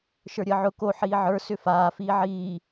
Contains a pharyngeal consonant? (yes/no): yes